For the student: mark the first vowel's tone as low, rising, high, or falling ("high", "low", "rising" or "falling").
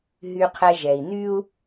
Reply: low